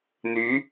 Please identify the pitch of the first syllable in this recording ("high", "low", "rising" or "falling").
rising